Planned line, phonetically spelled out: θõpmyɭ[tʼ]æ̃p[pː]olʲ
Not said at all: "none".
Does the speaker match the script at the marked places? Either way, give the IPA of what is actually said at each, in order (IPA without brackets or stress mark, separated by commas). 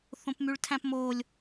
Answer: tʰ, m